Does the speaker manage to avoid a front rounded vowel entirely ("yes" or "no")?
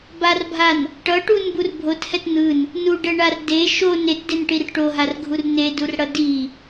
yes